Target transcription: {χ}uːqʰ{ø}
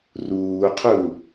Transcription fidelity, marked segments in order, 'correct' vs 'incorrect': incorrect: r, incorrect: u

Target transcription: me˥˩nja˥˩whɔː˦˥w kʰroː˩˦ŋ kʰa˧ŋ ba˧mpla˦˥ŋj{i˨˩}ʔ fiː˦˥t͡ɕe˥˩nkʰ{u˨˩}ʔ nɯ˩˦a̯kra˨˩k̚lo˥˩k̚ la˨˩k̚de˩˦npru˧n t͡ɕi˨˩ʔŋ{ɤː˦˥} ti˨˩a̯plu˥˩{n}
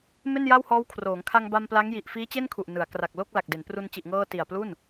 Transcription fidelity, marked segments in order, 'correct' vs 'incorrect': correct, correct, incorrect: ɤː˧, correct

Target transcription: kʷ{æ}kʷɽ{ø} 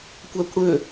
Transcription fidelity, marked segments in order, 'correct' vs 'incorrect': correct, correct

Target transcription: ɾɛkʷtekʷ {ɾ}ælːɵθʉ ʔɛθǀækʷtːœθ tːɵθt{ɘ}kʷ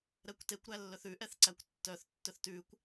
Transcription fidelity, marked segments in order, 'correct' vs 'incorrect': correct, incorrect: ʉ

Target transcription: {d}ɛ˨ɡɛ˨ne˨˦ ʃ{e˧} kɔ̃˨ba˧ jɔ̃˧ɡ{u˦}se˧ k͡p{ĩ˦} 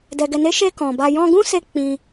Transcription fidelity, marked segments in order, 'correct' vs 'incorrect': correct, correct, incorrect: ũ˦, incorrect: ĩ˧

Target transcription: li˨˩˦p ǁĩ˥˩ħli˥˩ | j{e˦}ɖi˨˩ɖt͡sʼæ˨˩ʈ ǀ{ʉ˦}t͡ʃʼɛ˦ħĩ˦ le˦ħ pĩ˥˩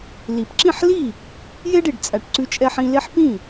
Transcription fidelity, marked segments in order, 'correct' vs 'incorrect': correct, correct

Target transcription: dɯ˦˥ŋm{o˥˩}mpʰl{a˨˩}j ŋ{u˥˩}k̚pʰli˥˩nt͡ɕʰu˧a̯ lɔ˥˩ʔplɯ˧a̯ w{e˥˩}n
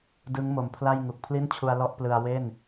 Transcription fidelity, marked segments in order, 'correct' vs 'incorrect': incorrect: o˨˩, incorrect: a˥˩, incorrect: u˨˩, correct

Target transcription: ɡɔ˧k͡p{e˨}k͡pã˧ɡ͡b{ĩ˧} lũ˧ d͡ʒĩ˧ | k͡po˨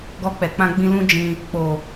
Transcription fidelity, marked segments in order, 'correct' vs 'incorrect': incorrect: ɛ˨, correct

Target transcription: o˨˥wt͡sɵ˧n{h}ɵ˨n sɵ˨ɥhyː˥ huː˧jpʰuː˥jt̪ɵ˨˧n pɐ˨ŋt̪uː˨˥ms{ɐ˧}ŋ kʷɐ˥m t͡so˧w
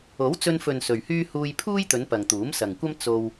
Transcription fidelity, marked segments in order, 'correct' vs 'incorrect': incorrect: f, incorrect: ɐ˨

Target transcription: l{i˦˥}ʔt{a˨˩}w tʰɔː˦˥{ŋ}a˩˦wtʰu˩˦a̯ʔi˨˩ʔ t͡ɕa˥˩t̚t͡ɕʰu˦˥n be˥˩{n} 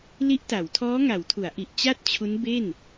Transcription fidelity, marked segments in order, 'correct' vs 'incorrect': correct, incorrect: a˩˦, correct, correct

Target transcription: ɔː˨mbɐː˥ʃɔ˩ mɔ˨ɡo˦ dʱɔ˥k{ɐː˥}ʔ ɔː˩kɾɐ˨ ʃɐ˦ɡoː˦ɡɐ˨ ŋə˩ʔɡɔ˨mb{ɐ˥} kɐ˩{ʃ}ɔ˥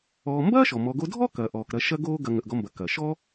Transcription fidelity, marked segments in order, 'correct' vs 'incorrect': incorrect: ɐː˩, incorrect: ɐ˩, correct

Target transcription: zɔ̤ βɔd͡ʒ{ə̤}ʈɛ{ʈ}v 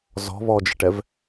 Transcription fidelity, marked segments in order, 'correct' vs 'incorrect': correct, incorrect: none

